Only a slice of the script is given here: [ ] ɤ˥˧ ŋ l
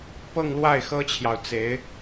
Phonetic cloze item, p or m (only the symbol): p